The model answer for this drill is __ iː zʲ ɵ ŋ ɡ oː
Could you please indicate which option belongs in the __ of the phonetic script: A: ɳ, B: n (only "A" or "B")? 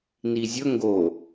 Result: B